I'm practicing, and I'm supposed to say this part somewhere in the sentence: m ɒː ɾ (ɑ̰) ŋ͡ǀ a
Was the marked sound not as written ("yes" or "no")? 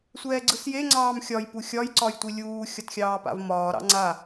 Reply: no